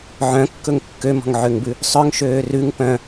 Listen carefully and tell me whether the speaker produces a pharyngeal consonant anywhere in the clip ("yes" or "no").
yes